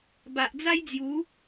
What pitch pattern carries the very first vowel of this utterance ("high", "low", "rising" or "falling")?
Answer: low